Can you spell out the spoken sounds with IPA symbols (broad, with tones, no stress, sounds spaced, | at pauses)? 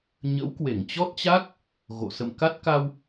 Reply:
ɲ ə̰˧˥ w k w e˧˩ ŋ t͡ɕ ɔ˦˥ t̚ t͡ɕ a˦˥ k̚ | ɣ o̰˧˨ s ə̰˧˨ m k a˦˥ t̚ k a˧ w